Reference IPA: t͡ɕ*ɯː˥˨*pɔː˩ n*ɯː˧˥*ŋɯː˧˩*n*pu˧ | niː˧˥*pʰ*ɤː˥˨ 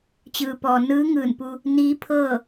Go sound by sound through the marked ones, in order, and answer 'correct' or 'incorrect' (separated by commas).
incorrect, correct, correct, correct